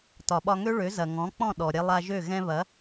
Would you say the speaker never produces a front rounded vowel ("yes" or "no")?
no